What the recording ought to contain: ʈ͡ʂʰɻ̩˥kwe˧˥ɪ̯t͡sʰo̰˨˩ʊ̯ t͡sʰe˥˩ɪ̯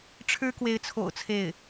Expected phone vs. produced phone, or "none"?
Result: none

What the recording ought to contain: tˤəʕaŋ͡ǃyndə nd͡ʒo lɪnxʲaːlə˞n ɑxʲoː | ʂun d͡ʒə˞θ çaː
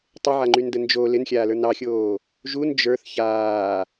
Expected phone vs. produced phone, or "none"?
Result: ʂ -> ʒ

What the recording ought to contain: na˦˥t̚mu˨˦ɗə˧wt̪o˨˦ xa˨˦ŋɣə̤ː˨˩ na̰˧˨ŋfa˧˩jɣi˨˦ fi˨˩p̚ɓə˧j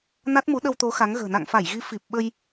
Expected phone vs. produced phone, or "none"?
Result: none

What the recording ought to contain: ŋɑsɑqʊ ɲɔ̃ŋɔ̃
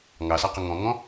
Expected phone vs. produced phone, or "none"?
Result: ɲ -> ŋ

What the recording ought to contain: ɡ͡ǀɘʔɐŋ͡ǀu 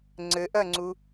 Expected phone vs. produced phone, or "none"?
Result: ɡ͡ǀ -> ŋ͡ǀ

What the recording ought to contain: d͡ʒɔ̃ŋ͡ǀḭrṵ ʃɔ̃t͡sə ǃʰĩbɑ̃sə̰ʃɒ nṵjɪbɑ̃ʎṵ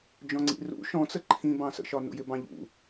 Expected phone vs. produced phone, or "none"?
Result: none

